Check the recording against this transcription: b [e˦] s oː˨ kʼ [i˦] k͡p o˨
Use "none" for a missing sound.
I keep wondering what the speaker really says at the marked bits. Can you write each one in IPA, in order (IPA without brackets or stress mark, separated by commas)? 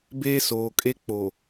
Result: e˦, e˦